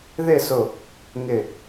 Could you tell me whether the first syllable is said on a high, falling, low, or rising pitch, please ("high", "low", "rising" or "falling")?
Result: falling